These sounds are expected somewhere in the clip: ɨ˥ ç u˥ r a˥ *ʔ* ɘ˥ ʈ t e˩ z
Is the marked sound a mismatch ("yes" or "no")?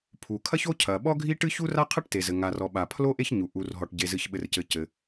yes